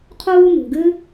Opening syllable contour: high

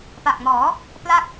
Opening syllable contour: low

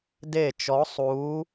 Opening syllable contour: falling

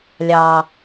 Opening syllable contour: low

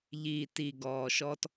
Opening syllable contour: low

